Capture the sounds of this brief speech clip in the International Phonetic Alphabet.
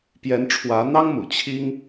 pjɛ˧˥n ʈ͡ʂʰwä˧˥n̪ɑ˥ŋmṵ˨˩ t͡ɕʰi˥ŋ

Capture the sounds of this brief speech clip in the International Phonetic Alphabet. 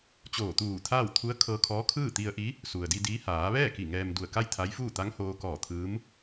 t͡ɕoː˧˩t̪uː˧˩t̪ʰaː˥˨w t̪ʰu˧˥ə̯kʰɤː˧kʰɔː˧˥kʰɯː˥˨ t̪i˧ə̯ʔi˧˥ | su˩ə̯di˧ di˧˥ haː˩˧ʋɛː˥˨ ki˧˩ŋɛː˧mdu˧˩ə̯ ka˥˨jt̪ʰa˧˥jfuː˥˨ t̪a˧˥ŋhoː˧kɔː˧˩ t̪ʰɯː˧˥m

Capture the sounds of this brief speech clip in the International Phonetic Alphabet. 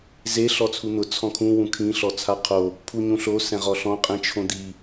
ze ɬɔt͡sʰun̪ʊ t͡sʰɔ̃kʰũ wũkʰĩ ɬɔt͡sʰaqʰo | pʰuɲũɬo sɛ̃ʁɔɬɔ̃ qʼĩt͡ʃʰõd̪i

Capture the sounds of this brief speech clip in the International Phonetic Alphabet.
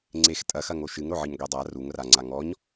ŋ͡ǀex tʼɐxɐ ŋoʃɨŋɾoʕɨɲ ɡʷedˤa ruŋraŋ͡ǀa ŋɔɲ

